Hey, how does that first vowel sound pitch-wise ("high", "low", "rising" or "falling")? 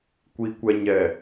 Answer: low